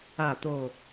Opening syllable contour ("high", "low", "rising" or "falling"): falling